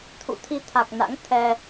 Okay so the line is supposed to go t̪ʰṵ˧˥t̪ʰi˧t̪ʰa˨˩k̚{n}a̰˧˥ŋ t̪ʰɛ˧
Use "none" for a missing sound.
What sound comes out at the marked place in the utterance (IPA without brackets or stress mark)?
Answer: n